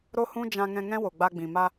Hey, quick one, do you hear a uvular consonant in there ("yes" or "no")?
no